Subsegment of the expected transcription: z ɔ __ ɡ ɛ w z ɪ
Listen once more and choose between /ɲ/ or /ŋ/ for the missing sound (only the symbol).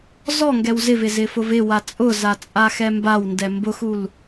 ŋ